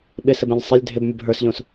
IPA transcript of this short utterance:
ɓ ɪ s ɘ b ẽ ʎ sˤ ɪ lʲ dʱ ɪ b mʲ ʊ b ɦ ə˞ s ʎ õ s

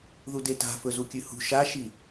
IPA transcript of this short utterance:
ð u d e t a̤ f ɵ z u kʲ ʉ h ṳ ʃ a ʃ i

